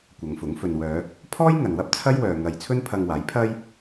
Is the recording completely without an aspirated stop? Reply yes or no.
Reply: no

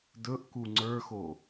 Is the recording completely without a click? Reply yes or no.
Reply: no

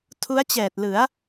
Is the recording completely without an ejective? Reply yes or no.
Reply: yes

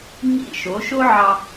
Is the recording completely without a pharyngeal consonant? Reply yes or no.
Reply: no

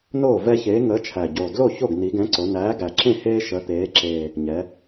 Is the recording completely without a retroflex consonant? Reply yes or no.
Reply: yes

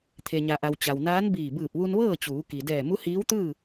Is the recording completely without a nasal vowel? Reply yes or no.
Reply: yes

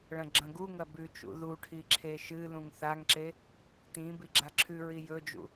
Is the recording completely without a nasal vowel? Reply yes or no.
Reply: no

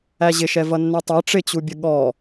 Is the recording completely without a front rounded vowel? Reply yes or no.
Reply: yes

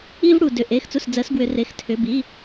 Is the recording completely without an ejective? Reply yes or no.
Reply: yes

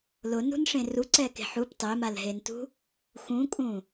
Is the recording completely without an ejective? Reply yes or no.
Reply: no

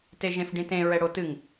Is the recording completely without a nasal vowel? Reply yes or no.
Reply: no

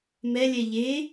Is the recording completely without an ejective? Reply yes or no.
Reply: yes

